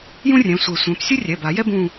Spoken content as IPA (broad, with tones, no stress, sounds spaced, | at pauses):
j ũ˥ rʲ ɛ̃˩˧˩ sʷ e˨˩˦ sʷ ɛ̃˩˧˩ p sʲ ɯ˥ rʲ ɛ˩˧˩ b a˨˩˦ j ɛ˥ b ũ˦˨